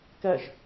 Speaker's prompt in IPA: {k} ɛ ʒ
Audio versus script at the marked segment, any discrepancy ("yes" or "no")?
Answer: no